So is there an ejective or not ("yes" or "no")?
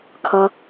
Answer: no